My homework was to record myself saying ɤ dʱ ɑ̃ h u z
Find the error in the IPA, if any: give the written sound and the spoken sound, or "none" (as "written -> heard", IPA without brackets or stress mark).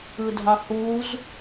ɤ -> ɯ